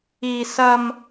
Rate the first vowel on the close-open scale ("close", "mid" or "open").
close